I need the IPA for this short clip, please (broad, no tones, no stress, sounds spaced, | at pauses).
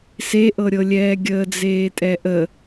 s e ʔ ɤ ɾʲ ɤ lʲ ɛː ɡʲ əː d͡z eː tʼ ɛ ʔ ə